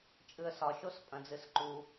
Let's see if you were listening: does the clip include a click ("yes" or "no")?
yes